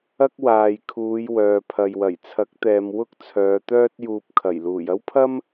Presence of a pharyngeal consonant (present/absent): absent